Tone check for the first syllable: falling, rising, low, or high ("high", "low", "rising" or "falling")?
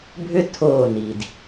high